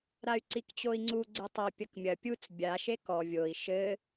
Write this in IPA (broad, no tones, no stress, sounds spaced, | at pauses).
ɾ a y̯ ǀ i k t͡ɕ o i̯ ŋ͡ǀ u ɡ͡ǀ ɘ tˤ ɐ pʲ ɐ k mʲ ɐ pʲ u t͡s bʲ a ʃ e k ɔ vʲ o i̯ ʃ ɘ